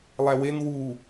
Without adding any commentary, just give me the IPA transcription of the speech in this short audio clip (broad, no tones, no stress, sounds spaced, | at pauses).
lˠ æ w e n w u